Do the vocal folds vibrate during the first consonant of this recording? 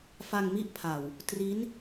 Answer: no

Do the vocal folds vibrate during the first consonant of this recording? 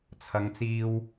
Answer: no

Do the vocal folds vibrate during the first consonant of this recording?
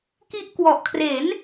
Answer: no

